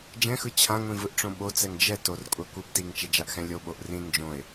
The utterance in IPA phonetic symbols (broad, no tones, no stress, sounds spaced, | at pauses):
d͡ʒ ɛ̃ x ɯ t͡ɕʰ ã ŋʷ ĩ v ɯ ʔ ʈ͡ʂ õ ɓ o t͡s ɛ ŋ d͡ʒ ɛ t o r kʷʼ a kʷ ɯ b t i ŋ t͡ʃ ɛ d͡ʒ a ʔ x ɛ̃ lʲ o ɓ o ʔ r ĩ n d͡ʒ õ ɪ̯